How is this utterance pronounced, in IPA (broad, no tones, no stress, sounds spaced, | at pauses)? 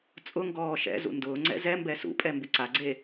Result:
t͡sʼ ʊ ŋ ɡ ɔː ʃ ɛ̰ z ṵ n d ʊː ŋ͡ǀ ɛ̰ z ɛ m b ɛ s ṵ pʼ ɛ m b ɪ ǀ a ɡ͡ǀ e